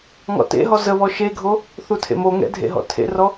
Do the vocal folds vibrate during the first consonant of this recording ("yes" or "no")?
yes